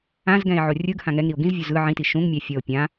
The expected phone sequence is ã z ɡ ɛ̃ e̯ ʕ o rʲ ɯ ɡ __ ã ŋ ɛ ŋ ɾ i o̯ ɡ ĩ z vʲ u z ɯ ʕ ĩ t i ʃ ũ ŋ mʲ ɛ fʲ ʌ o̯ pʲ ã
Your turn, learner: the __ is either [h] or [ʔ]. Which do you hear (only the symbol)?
h